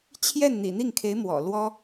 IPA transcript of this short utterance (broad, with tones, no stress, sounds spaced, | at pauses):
t͡ɕʰ j ɛ˥˩ n n̪ ḭ˨˩ n̪ i˥˩ ŋ kʰ e˧˥ ɪ̯ m w ɔ̰˨˩ l w ɔ˥